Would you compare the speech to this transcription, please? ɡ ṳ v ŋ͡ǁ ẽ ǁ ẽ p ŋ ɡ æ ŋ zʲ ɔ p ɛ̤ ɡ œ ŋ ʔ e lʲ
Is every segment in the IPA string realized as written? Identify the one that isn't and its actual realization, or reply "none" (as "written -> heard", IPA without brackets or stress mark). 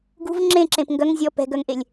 æ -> œ